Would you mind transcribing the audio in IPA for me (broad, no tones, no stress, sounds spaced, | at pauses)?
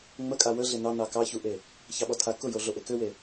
ŋ͡m ə kʼ a w ə ɮ e n ɑ n ɑ k ɑ ç u ʔ e | ç ɑ ɓ ɔ tʰ a k ʊ j o ɮ o ʔ e k ø w e